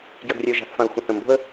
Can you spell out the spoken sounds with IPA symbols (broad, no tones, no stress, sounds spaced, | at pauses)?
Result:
ɡ j ɐ ɡ rʲ ɛ ə̯ ʒ a̤ θ f ã ə̯ xʷ ə̃ θ ə̃ m b o̤ ə̯